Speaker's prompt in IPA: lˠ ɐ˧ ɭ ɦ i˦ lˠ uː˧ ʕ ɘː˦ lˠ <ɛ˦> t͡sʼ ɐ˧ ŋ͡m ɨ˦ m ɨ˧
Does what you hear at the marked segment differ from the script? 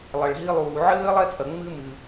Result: no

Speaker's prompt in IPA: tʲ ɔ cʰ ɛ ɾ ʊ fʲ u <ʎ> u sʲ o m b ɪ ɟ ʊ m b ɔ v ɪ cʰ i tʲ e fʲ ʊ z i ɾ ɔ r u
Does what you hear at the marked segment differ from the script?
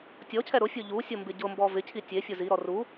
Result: no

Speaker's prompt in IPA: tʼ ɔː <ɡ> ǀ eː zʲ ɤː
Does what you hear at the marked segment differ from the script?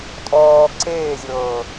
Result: no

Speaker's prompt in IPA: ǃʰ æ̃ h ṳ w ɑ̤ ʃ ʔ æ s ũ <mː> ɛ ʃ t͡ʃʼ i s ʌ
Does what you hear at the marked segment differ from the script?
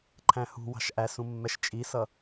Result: no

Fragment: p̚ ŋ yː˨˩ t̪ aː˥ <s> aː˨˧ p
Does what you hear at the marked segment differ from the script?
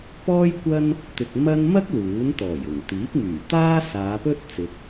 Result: no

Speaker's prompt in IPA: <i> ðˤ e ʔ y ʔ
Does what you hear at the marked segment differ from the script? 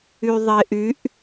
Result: yes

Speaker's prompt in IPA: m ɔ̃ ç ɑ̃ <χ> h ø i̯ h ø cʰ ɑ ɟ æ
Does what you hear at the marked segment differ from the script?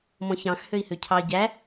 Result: yes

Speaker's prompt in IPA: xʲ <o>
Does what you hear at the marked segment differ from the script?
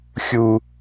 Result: yes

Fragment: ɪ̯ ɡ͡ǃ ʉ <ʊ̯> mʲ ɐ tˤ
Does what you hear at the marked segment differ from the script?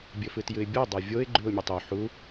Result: no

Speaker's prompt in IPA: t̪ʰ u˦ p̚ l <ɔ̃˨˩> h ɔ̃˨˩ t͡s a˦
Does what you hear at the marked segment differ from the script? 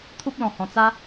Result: no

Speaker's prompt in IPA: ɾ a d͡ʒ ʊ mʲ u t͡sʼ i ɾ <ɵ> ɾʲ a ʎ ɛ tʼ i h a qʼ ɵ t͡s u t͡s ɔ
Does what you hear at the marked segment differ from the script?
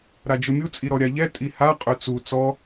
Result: yes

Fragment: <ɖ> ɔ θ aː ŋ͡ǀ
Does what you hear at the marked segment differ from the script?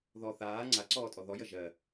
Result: yes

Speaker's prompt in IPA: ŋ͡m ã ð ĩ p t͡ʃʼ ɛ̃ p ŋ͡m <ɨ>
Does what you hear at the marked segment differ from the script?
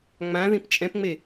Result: yes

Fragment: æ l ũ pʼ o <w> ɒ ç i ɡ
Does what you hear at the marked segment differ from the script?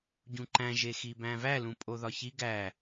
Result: yes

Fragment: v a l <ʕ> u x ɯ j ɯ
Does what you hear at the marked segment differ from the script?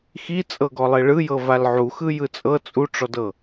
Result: no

